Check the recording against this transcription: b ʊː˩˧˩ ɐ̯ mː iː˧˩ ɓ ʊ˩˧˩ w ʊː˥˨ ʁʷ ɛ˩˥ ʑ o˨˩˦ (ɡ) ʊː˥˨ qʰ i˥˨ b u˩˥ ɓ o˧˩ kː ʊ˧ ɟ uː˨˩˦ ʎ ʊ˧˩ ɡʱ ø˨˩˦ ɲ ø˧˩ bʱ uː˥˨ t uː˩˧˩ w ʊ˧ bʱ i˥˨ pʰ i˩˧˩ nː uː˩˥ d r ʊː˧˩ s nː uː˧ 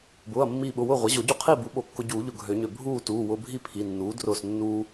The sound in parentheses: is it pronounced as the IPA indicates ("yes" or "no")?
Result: no